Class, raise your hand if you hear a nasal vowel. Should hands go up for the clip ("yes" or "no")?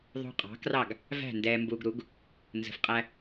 no